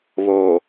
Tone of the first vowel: low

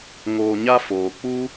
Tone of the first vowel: low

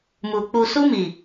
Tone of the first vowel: low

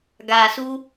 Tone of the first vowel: low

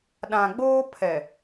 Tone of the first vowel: low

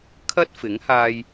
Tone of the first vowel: high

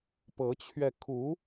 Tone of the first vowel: rising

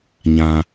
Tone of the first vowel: low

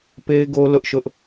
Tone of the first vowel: high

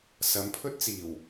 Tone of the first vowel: rising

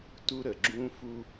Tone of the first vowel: high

